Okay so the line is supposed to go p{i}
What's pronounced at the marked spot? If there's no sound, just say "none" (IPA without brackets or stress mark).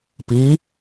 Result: i